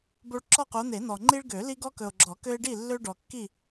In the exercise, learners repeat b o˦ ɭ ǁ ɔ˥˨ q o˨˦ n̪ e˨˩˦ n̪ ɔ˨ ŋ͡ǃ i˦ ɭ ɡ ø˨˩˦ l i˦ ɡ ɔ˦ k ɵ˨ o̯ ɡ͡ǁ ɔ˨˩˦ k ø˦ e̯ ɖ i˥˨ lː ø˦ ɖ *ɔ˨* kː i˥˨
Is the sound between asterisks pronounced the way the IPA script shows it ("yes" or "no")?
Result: yes